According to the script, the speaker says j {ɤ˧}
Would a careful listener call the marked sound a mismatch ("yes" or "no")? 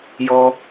yes